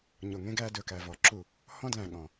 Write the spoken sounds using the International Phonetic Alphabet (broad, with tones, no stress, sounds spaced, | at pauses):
ɲ o˨ ŋ ẽ˦ ɡ æ˦ d ɵ˨ k æ˨ v ɔ˨ ǁ u˦˨ | h ɔ̃˦ d l æ̃˨ ɠ ɔ̃˨